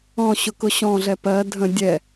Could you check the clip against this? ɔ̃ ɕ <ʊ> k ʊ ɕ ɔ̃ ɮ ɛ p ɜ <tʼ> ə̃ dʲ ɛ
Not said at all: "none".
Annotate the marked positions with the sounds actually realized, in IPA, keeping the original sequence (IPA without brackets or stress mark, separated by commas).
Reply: ʊ, dʱ